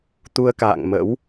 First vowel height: high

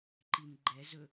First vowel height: high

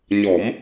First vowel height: mid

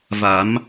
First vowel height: low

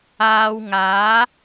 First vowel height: low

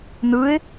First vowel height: high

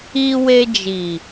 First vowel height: high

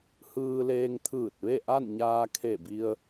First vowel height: high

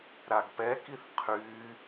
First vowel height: low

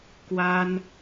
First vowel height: low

